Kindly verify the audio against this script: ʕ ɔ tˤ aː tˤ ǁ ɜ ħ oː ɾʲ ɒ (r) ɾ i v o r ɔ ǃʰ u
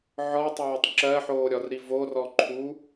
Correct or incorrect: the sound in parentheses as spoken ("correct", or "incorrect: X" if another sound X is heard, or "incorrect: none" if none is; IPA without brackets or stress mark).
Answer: correct